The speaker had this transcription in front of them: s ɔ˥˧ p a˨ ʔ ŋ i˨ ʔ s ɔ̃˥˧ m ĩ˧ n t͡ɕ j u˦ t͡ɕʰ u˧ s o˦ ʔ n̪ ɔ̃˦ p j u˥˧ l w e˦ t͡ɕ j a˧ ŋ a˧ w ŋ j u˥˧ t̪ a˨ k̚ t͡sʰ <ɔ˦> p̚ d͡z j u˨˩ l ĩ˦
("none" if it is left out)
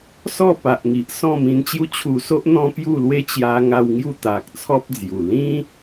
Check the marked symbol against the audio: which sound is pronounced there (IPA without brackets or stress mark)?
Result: ɔ˦